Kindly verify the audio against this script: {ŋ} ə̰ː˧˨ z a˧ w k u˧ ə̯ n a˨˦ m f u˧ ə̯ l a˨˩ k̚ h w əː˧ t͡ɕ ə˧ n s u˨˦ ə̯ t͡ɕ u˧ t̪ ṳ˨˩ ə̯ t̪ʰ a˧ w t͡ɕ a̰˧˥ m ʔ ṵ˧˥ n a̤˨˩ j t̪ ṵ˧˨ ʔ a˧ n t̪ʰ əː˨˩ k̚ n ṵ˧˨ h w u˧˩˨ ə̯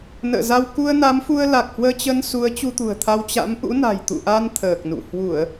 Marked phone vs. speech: incorrect: n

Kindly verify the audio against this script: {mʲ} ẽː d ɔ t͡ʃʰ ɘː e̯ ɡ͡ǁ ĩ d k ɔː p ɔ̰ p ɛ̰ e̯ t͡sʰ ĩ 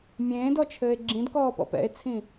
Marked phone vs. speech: correct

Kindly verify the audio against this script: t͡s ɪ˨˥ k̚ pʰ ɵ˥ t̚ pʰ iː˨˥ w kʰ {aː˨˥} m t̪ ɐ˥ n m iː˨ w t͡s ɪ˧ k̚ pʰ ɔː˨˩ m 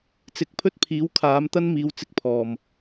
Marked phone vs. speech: correct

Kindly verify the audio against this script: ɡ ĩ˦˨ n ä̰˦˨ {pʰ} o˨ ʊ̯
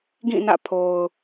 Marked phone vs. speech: correct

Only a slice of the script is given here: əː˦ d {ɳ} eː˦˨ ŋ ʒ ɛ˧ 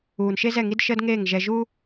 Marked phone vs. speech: incorrect: ŋ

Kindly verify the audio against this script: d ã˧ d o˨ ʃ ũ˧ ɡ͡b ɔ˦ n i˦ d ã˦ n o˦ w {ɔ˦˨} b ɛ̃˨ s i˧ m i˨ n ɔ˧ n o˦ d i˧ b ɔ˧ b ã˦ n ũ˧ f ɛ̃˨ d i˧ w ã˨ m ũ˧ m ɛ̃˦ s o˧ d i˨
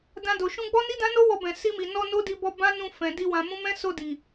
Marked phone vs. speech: incorrect: ɔ˧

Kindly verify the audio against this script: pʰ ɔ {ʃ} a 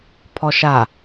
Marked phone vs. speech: correct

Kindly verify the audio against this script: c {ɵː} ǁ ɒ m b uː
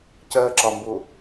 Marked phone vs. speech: incorrect: əː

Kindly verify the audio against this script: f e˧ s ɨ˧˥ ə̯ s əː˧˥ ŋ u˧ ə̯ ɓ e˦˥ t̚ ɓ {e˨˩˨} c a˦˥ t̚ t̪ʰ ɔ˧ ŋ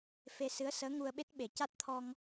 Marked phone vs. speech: correct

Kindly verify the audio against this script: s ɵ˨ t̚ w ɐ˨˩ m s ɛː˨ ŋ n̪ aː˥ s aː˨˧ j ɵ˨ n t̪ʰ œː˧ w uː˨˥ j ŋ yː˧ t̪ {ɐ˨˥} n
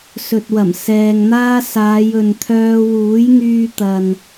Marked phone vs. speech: incorrect: ɐ˨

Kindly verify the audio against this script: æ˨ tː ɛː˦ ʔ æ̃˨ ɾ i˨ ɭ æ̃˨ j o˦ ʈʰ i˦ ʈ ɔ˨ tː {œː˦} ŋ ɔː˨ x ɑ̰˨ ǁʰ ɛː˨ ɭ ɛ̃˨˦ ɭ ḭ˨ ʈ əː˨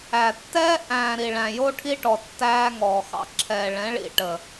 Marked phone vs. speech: incorrect: æː˦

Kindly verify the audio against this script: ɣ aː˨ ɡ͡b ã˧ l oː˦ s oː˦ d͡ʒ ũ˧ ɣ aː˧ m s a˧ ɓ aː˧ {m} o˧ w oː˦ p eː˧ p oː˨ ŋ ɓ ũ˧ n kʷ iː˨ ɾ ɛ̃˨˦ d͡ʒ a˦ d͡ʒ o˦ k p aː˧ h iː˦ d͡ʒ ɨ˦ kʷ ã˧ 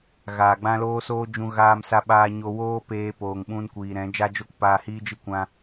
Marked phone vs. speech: incorrect: ɲ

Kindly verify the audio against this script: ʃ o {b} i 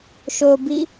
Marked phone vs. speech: correct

